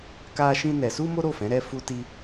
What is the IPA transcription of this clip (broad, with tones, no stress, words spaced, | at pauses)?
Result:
ka˦ʃĩ˦nɛ˧ su˦mo˦ɾo˦˨fɛ̃˨˦ ɾɛ˦fu˦ ti˦